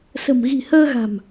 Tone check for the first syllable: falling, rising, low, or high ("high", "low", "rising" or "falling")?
low